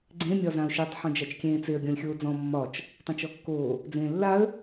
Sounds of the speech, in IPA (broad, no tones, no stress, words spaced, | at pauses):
ɡ͡ǀẽ mʲɒzãʊ̯ʃetˤ ħõd͡ʒat͡ʃkʲẽːt͡seə̯ ɡʲɔ̃lʲxʲoːd͡zɔ̃ mːɒt͡ʃ | tˤãt͡ʃɔkːoː | d͡zẽːlːaə̯